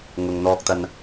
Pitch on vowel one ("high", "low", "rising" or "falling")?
low